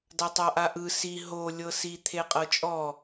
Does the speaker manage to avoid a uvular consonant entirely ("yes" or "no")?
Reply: no